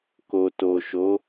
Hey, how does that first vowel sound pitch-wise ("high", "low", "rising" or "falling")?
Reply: low